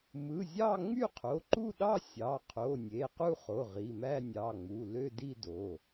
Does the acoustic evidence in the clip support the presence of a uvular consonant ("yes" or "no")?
yes